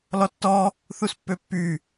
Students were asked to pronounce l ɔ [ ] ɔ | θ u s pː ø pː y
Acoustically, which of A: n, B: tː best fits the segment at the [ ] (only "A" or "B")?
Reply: B